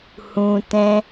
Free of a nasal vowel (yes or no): no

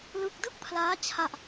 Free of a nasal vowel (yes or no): yes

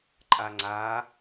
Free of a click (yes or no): no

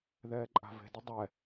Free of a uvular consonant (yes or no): yes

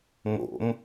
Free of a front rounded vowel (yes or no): yes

